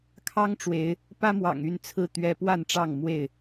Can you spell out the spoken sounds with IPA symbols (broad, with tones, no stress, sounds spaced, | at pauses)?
kʰ ɑ˦ ŋ ʈ͡ʂ w e˨˦ ɪ̯ | p ä˦ m w ɑ̰˨˩ ŋ y˥˨ n t͡sʰ ɹ̩˥˨ t̪ ɥ ɛ˦ p w a˥˨ n ʈ͡ʂ ɑ˥˨ ŋ m w e˥˨ ɪ̯